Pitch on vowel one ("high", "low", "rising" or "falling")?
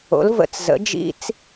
rising